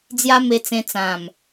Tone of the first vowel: high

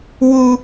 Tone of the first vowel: high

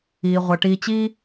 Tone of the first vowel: low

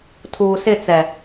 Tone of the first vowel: low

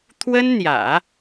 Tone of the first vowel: high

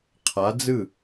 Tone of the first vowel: rising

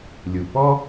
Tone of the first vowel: low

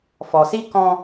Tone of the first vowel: low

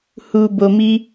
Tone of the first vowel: low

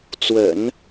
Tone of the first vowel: low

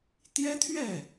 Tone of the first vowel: high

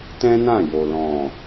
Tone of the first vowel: high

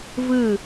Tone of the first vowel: falling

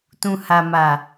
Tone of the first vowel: low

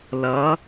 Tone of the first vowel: rising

